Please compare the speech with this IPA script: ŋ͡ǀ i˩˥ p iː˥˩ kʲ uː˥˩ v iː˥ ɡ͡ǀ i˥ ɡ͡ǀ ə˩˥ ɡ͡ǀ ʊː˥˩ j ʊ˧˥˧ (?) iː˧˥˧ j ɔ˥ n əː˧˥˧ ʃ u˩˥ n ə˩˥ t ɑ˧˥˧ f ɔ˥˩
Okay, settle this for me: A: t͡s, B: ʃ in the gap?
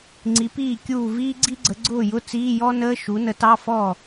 A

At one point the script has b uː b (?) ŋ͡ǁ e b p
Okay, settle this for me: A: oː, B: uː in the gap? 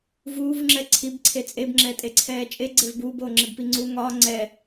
A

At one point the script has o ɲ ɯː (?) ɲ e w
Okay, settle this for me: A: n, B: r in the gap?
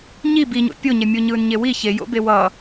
A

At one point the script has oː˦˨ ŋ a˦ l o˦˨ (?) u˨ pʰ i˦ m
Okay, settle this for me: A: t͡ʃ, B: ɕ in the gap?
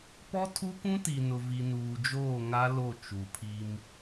A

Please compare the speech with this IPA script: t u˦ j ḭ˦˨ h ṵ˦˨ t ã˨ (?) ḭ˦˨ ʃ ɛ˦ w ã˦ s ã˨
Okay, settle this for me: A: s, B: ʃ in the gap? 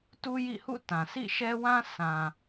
A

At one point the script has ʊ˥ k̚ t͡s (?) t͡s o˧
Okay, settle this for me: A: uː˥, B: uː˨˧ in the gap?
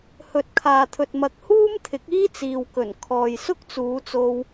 B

